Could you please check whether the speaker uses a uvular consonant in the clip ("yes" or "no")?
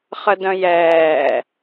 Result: yes